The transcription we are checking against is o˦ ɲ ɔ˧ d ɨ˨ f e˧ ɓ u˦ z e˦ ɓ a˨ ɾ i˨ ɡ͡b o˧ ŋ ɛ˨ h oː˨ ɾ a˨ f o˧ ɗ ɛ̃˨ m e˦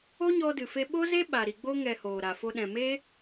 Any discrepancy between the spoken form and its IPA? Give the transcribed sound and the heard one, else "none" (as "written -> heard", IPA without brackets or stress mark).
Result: u˦ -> o˦